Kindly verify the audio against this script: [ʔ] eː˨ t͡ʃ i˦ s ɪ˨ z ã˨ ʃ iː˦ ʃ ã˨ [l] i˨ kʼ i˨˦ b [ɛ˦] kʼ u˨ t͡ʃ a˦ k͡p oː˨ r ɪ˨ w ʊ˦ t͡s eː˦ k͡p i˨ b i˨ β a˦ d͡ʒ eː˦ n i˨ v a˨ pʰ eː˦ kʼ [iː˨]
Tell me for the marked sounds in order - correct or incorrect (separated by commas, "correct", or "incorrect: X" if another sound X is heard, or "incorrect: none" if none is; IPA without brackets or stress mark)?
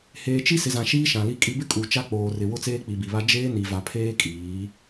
incorrect: h, correct, incorrect: ɪ˦, incorrect: iː˨˦